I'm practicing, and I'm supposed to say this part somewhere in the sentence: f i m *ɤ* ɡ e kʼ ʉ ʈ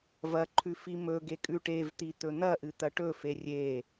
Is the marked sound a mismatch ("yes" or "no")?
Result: yes